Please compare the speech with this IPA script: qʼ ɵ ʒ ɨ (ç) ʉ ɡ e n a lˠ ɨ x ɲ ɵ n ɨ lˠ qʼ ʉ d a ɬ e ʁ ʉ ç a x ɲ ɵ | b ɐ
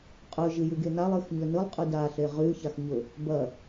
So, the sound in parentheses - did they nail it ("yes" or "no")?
no